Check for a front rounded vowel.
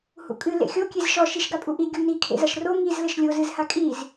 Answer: absent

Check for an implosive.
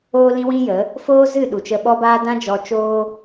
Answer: present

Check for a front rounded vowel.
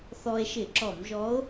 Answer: absent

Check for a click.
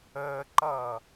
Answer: present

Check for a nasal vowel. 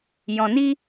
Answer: present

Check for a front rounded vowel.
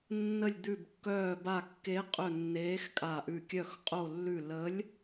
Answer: present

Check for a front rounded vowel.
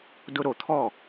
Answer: absent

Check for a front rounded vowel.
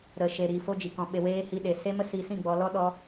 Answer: absent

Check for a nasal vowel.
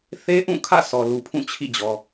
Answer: present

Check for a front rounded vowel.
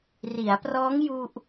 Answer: absent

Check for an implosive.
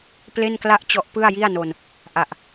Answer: absent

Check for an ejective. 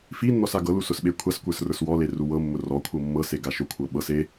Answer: absent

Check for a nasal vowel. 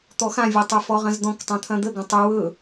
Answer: present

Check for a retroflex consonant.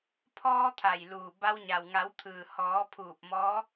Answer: absent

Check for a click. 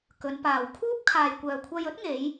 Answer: absent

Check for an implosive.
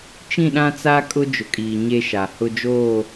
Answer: present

